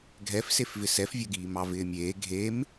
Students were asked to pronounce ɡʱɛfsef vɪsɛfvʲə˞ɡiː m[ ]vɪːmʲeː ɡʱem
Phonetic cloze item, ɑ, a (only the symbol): ɑ